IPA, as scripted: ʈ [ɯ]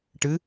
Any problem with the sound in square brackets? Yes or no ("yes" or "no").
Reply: no